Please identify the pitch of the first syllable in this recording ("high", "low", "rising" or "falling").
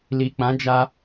low